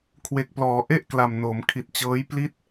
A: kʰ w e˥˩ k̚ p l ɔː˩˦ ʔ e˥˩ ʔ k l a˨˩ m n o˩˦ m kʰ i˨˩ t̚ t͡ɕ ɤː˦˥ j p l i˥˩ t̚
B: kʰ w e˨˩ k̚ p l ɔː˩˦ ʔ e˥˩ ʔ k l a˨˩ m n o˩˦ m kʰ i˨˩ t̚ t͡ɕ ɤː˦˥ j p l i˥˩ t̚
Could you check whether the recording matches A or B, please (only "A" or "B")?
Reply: B